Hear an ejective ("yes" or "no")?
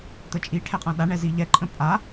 yes